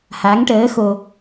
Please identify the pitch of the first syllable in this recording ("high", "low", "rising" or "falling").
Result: rising